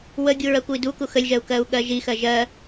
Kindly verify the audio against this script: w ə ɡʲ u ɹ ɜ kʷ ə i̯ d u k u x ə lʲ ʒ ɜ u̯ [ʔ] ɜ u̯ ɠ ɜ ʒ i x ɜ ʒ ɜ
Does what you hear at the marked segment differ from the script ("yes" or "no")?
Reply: yes